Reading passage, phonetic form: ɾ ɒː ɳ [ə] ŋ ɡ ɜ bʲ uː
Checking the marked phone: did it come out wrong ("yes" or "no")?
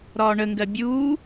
no